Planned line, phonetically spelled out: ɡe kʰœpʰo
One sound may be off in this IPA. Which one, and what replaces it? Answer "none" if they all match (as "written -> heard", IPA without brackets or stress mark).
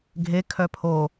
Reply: ɡ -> ɡʱ